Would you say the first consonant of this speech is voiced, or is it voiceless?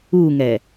voiced